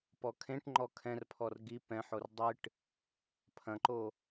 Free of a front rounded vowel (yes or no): yes